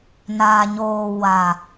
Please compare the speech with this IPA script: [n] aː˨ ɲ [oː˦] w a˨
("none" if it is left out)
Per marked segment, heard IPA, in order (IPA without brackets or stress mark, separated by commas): n, oː˨